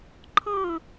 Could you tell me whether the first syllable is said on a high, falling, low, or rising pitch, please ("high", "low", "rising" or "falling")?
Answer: falling